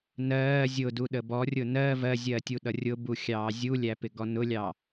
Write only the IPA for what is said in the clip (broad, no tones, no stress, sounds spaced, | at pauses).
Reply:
n ɜː zʲ ʊ d u ɗ ə b ɔ rʲ ʊ n ɜ v ɜ zʲ ɜː tʲ u ɗ ʌ rʲ ʊ b u xʲ ɑː zʲ u lʲ æ p ɪ ɡ ɔ n ʊ lʲ ɑ